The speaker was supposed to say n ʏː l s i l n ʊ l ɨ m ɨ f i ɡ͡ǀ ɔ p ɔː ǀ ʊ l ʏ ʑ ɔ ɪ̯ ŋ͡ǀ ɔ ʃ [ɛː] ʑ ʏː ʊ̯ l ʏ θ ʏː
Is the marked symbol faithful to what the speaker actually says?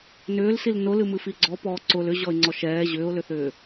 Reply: yes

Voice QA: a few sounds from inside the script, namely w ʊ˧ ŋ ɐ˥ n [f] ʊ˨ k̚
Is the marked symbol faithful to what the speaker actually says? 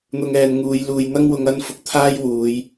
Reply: yes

